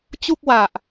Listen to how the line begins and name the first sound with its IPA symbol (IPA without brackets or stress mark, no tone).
t͡ɕ